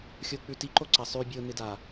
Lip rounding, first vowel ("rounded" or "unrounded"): rounded